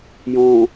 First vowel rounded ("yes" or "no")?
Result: yes